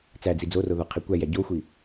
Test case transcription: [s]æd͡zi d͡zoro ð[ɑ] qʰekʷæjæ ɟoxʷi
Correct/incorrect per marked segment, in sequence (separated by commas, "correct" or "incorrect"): incorrect, incorrect